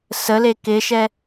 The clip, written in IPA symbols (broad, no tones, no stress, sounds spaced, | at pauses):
s ə l e k ɪ ʃ ɛ